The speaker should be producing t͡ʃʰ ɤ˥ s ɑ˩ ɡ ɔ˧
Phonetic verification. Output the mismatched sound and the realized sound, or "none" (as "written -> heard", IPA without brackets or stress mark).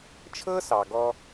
none